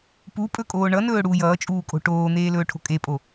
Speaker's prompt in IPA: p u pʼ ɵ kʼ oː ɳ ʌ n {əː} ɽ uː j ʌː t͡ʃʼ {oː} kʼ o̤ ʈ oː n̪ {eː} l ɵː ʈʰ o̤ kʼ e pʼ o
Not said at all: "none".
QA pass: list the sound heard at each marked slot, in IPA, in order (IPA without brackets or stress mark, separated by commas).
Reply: ɵː, uː, eː